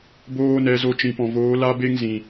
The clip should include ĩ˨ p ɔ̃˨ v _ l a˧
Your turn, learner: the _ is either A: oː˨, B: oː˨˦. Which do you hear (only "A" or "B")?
B